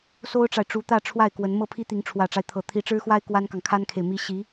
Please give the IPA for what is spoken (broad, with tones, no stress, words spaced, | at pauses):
so˥ʊ̯ʈ͡ʂa˨ɪ̯ʈ͡ʂu˧˥ t̪ä˥˧ ʈ͡ʂʰwa˥˩ɪ̯kwə˧˥n mɤ˥˩pʰi˥t̪i˧˥ŋ ʈ͡ʂʰwä˨˩ʈ͡ʂa˦ɪ̯t̪ʰɤ˨˩ t̪ʰi˧˥ʈ͡ʂɻ̩˥xwa˥ɪ̯ kwa˥nkɑ˨ŋkʰa˥nkʰe˨ɪ̯ mi˧˥ ɕi˧˥